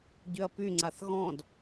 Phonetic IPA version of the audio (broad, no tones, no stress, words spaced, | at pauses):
ɟʏɐ̯pyŋ͡ǀaθ ɣɔ̃d